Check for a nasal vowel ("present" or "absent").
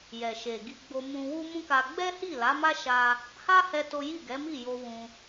present